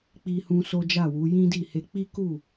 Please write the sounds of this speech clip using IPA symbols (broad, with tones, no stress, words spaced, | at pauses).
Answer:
k͡pi˧hũ˧ so˦d͡ʒa˦˨wu˨˦ jĩ˦di˦˨he˧ k͡pi˦ku˦˨